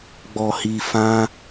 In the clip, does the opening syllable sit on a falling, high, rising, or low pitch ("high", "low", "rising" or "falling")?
low